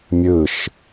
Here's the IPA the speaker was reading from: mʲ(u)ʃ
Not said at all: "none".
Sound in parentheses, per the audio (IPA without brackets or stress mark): ɯ